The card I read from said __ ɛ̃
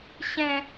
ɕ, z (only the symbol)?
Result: ɕ